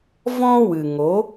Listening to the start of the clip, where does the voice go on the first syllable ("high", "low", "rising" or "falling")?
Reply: high